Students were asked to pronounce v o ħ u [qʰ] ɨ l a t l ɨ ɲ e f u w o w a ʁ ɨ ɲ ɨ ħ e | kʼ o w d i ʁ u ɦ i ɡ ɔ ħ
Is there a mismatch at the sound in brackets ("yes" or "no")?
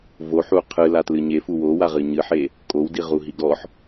no